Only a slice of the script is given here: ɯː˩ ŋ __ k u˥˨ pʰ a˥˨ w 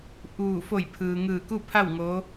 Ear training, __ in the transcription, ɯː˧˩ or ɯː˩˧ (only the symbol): ɯː˧˩